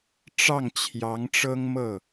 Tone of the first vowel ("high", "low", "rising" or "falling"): falling